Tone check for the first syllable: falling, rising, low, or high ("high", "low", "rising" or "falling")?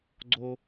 high